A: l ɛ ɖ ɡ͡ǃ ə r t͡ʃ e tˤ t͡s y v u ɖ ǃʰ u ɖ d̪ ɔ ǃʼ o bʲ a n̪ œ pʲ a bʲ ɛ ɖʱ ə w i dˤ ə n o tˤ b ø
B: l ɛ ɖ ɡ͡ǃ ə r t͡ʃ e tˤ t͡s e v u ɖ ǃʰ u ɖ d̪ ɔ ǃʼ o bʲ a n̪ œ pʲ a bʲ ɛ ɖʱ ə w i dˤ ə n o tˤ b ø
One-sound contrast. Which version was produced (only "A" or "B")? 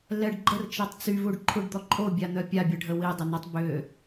A